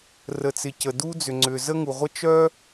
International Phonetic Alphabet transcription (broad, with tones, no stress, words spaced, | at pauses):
rə˩t͡sɪ˩ cə˩du˥ d͡zʏ˩ŋ͡ǀʏ˩ zə˥ŋu˩ʁʷə˥ t͡ʃœ˥